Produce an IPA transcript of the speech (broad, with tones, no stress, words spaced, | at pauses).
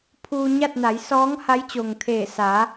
pʰuː˧ɲa˥˨t̚na˩˧jsɔː˧˥ŋ ha˧˥jt͡ɕo˩ŋt̪ʰeː˧˩ saː˩˧